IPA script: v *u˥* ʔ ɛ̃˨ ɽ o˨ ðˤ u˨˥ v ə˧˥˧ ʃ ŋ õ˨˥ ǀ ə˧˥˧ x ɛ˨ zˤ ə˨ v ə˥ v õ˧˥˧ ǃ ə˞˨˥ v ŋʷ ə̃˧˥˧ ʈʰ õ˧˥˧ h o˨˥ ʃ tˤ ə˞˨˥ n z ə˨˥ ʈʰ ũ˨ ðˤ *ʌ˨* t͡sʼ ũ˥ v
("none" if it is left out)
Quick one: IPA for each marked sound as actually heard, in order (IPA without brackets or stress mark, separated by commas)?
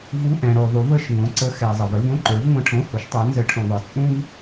u˧˥˧, ə˞˨